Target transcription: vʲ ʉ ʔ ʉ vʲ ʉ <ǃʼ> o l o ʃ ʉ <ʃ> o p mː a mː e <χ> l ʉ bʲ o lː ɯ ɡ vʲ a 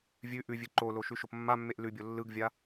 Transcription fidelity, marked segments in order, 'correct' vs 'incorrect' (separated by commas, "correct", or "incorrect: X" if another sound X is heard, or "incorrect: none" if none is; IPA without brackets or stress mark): incorrect: ǃ, correct, incorrect: ʔ